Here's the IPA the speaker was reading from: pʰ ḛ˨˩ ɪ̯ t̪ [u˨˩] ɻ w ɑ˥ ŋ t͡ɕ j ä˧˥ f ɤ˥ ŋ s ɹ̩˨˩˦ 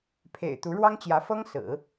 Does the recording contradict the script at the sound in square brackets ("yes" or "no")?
yes